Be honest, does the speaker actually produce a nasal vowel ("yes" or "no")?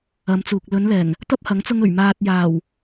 no